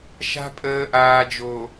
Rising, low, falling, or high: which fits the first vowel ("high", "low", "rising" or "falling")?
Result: high